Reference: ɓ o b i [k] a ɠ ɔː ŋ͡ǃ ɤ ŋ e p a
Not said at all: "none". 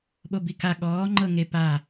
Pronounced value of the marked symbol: k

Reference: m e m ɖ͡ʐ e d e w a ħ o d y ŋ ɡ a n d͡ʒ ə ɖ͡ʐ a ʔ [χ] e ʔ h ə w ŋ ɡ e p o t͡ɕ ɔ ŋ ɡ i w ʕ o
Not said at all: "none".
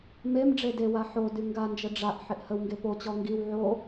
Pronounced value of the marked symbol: ħ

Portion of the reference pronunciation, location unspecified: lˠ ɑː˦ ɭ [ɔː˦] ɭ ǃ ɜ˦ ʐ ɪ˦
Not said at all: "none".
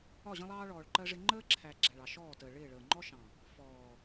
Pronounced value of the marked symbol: ɔː˨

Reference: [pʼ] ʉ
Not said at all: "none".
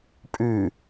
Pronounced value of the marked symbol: pʼ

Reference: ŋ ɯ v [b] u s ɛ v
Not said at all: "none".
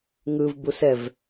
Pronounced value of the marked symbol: b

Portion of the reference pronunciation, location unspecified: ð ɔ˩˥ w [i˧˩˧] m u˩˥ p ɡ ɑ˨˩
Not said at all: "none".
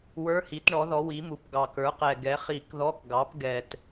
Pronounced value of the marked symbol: i˩˥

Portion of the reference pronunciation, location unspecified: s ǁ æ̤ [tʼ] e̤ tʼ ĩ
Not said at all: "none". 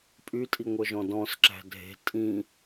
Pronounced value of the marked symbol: dʱ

